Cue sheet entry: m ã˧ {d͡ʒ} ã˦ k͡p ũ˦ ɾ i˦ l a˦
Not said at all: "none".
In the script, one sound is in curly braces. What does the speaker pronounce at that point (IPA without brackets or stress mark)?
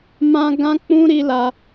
ɡ